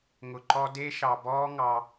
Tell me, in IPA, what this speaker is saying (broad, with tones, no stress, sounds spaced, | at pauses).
ŋ ʊ˧ ǃ ɔ˦ d e˦ ʃ ɑ˧ b ɔː˦ ŋ ɑ˧